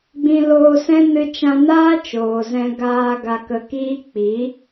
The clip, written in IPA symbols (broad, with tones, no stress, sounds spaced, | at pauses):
ɡ͡b ĩ˧ l oː˧ s ɛ̃˦ n ɨ˧ t͡ʃ ã˧ n aː˦ t͡ʃ oː˨ z ɛ̃˧ ɡ aː˧ ɡ a˧ k ə˧ k iː˦ k͡p i˨˦